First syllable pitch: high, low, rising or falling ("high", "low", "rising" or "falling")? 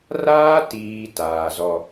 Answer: high